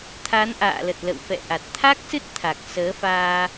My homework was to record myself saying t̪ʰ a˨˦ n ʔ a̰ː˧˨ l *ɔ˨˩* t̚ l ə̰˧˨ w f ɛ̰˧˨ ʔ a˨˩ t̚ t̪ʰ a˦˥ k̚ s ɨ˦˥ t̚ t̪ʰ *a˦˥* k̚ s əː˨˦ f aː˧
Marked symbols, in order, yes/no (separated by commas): no, no